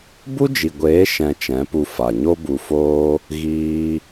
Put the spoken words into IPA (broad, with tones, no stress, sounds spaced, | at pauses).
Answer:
b u˦ d͡ʒ i˨ ɡʷ eː˨˦ ʃ ɛ̃˧ t͡ʃ ɛ̃˨˦ p u˧ f a˨ ɲ o˦ b u˧ f oː˦ | ɣ iː˧